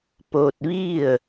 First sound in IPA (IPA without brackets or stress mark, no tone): p